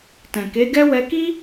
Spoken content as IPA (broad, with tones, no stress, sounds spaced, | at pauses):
t ɛ̃˨ k e˨˦ ɡ ɛ˦ w ɛ˧ k i˦